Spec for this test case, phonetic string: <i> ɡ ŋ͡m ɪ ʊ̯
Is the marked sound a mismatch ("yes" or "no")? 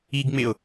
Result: no